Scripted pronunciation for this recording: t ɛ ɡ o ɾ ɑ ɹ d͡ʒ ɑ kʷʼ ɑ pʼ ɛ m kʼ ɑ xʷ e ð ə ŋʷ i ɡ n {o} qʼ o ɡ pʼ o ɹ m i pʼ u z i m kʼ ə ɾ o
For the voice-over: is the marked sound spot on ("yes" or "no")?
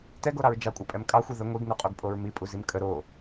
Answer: yes